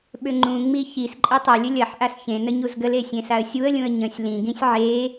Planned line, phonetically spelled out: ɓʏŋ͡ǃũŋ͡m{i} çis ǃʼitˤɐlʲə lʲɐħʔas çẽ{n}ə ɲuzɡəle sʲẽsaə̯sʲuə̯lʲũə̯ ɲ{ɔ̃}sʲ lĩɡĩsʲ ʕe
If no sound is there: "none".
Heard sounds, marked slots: i, n, ə̃

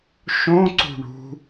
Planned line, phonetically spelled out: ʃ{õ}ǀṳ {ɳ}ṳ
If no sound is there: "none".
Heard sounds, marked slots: õ, ɳ

